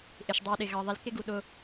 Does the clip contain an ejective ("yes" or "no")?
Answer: no